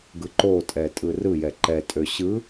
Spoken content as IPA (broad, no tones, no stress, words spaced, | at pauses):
ɡɯǃotʼɛ tʼɯrɯjɛ ǃɛtʼø ɕɯ